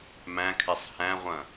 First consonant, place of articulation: labial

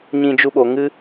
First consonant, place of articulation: palatal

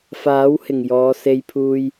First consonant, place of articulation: labial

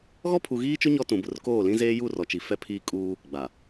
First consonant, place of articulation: velar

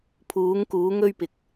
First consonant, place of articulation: labial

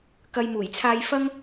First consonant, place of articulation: velar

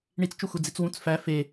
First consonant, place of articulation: retroflex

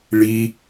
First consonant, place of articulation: retroflex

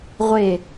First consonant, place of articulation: uvular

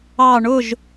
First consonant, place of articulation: retroflex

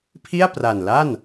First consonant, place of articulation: labial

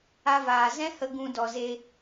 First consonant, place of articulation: labial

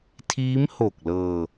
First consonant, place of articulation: alveolar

